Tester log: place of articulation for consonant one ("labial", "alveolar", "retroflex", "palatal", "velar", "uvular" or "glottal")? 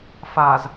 labial